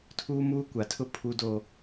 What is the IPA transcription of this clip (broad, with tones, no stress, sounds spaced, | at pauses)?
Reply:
tʰ uː˦ m uː˦ kʷ a˨˦ tʰ ʊ˦ pʰ u˦ d oː˦